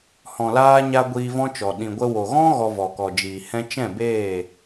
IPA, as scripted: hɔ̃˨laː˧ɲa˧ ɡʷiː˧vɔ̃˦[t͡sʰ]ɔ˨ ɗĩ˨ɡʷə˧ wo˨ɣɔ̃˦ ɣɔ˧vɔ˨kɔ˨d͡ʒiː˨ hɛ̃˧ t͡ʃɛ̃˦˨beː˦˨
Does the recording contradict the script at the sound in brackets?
yes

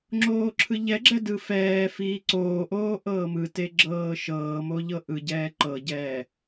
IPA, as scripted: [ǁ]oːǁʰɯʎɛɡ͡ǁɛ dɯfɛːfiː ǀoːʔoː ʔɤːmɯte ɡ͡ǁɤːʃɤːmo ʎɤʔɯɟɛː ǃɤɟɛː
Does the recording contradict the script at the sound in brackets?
yes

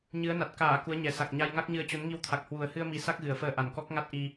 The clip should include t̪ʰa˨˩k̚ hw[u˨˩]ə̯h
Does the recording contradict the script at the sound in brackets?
no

